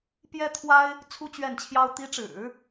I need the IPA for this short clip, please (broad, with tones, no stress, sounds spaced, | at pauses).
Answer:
p j ɛ˥ t̪ʰ w a˥ ɪ̯ | t͡sʰ u˥ t͡ɕ ɥ ɛ˥˩ n t͡ɕʰ j ɑ˥ ʊ̯ t̪ i˧˥ ʈ͡ʂ ɻ̩˨˩˦